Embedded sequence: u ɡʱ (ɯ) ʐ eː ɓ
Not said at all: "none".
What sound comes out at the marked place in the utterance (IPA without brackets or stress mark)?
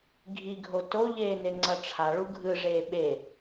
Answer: ɯ